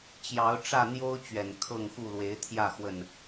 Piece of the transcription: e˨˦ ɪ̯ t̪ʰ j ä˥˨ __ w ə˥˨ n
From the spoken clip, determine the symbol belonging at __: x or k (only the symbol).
x